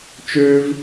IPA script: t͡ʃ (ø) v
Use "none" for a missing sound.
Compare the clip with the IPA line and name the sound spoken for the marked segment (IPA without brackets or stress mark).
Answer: ø